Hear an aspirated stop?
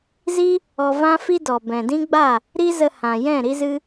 no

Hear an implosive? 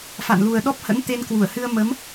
yes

